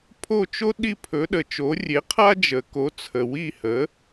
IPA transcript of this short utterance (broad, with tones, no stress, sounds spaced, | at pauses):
pʰ o˥˩ t͡ʃ o˥ ɗ i˥˩ pʰ ɵ˩˥ ɗ ə˩ t͡ʃ o˩˥ rʲ e˩˥ qʰ a˥ d͡ʒ ə˩ k o˩˥ t͡sʰ ə˩ w i˥˩ h ə˩˥